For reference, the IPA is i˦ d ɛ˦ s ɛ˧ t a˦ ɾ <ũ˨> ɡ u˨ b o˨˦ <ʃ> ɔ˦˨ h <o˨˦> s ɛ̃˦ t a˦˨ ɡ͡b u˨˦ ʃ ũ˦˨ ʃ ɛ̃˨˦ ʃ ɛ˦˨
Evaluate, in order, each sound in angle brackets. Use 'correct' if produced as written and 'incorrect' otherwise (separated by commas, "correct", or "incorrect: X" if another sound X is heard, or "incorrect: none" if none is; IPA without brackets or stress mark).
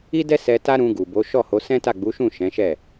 incorrect: ũ˧, correct, correct